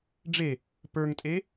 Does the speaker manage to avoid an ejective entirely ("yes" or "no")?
no